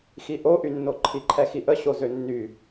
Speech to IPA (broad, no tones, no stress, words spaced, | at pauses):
xiʔoʔynːo ǃʰiǃʰɛxiʔə ɕozønːy